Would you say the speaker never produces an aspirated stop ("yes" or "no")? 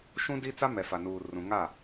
yes